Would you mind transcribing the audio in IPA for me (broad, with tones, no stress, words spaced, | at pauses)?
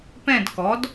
pɛ̃˥˧dkɔ˨˥d